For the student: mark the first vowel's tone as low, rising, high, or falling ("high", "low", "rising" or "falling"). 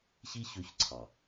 high